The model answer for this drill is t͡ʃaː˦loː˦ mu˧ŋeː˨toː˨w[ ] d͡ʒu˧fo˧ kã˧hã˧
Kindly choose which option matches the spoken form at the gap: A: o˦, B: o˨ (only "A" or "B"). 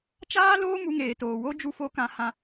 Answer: A